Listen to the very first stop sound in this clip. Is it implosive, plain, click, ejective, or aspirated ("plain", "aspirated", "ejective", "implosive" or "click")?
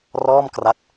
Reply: plain